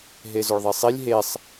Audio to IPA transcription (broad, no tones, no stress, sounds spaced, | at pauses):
ɦ e z o ɭ ðˤ i sˤ i lʲ ɦ e sˤ